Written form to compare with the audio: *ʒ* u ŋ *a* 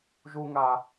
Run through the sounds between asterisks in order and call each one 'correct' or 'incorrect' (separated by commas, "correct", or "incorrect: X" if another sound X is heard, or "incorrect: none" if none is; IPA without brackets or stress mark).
correct, correct